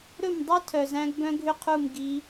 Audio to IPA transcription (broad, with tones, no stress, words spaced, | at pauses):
ɾɵ˦˨mdˤœ˦ tʰœ˨zæ̃˧ɡbœ̃˧ ɡʱʏ˦qʰu˦˨m ɡi˧